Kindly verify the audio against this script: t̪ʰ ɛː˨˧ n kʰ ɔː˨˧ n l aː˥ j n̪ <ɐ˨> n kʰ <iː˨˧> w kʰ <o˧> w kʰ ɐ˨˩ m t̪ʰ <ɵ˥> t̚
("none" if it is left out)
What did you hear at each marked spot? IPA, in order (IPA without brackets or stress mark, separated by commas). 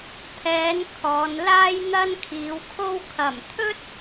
ɐ˥, iː˨˧, o˧, ɵ˥